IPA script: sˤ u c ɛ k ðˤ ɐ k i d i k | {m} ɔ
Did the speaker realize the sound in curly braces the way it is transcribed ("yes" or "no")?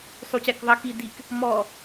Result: yes